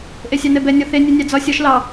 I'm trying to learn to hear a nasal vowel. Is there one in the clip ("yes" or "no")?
no